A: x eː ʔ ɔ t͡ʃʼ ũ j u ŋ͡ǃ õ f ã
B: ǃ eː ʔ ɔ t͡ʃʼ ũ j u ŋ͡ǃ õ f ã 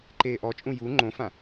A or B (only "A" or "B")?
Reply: B